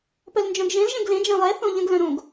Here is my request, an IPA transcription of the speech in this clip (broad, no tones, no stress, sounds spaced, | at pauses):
p œ l n d͡ʒ œ̃ ɡ ʒ ẽ l ʒ ẽ ɡ l ẽ d͡ʒ ẽ lˠ ɛ θ õ ʎ ə̃ ɡ l œ̃ ɾ õ ɡ